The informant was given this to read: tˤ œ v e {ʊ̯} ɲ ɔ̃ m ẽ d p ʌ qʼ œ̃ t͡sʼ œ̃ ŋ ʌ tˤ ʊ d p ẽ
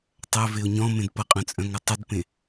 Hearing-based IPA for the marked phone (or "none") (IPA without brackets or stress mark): ʊ̯